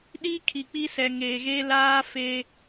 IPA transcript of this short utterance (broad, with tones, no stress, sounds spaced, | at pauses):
ɗ i˦ kʰ i˨ k͡p i˦ s ɛ˨ ŋ eː˨ ɣ e˦ l aː˦ f e˦